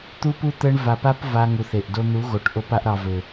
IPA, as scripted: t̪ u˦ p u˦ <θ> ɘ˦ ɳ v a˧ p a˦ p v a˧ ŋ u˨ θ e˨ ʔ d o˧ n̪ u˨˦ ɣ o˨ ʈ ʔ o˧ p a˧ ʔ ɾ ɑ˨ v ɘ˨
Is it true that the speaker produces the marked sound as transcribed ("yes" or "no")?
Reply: no